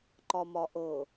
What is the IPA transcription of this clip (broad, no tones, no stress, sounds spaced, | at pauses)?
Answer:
ǃ ɒ m ɒ ʔ ɤ